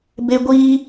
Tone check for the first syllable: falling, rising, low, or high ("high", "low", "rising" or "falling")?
high